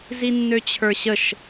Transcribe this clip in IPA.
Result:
z i nː ø t͡ɕʰ ə˞ ɕ ə ʃ

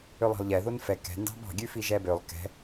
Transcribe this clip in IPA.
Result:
ø lˠ ɑ̤ lˠ ʎ ɛ ð o n f ɛ k ɛ̤ n d ɑ̤ b ɑ̤ ɡʲ ʉ f i ʒ ɛ b ø lˠ k ɛ̤

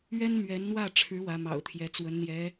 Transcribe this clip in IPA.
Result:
ɥ ɛ˥ n m ɥ ɛ˧˥ n n̪ w ä˥˩ ʈ͡ʂʰ ɻ̩˧˥ w ä˧˥ m ɑ̰˨˩ ʊ̯ t̪ʰ j ɛ˧˥ t͡s w ə˧˥ n n̪ j ɛ˧˥

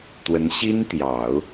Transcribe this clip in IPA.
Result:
t̪ w ə˧˥ n ɕ i˥ n t̪ j ɑ˨˩˦ ʊ̯

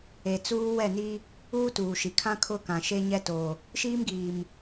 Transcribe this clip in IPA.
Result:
e˨ t͡s uː˦ w ɛ˦˨ n i˦ | uː˦ t uː˨ ʃ i˨ kʰ ã˦ kʰ ʊ˦˨ k ã˨ ʃ e˦ ɲ ɛ˦ t o˨ | ʃ iː˦ m ɡ iː˨ m

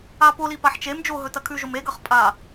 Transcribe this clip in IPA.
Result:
a p o l i p a ħ t͡ʃ e m d͡ʒ o ɦ ɵ t ɐ kʰ ʉ ʒ o m e ɡ ɐ χ pʼ a

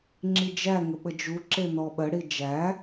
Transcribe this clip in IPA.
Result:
ŋ͡ǁ i d͡ʒ æ ŋ ə ɓ ə d͡ʒ u ǁ e n ɔ ɓ ə ɽ i d͡ʒ æ

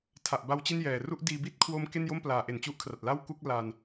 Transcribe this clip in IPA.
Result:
tʰ a˨˩ ʔ b a˦˥ w t͡ɕ i˥˩ n j ɛː˨˩ r u˥˩ ʔ d iː˧ b i˥˩ t̚ kʰ w o˦˥ m k e˥˩ n j o˥˩ m p l aː˩˦ ʔ e˩˦ n t͡ɕ u˦˥ ʔ kʰ r a˨˩ t̚ l a˥˩ w k u˥˩ k̚ l aː˧ n

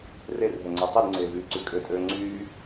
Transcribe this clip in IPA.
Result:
r e r ɦ ø ŋ͡ǀ æ tˤ i d ŋ͡ǀ eː v yː ǀ y kʼ ø tʼ øː ŋ͡ǀ yː

